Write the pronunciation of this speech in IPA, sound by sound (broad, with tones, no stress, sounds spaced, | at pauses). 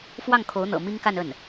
f w ɑ˥˩ ŋ kʰ o˧˥ ʊ̯ n̪ ɤ̰˨˩ m i˥ ŋ k a˥˧ n ə˥˩ n